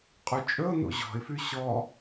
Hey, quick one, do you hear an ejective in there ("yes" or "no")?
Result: yes